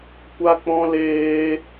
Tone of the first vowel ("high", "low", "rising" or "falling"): high